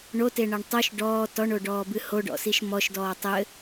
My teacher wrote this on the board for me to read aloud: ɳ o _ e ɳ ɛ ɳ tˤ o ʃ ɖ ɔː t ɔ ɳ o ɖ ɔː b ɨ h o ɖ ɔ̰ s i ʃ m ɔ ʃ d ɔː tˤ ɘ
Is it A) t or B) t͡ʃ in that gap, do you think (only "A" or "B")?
A